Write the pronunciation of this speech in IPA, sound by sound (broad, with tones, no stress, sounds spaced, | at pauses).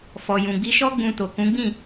f ɔ˨ j ũ˨ ɡ͡b i˧ ʃ ɔ˦ ɡ͡b ũ˧ t o˨ k ũ˨˦ ɡ͡b ĩ˦˨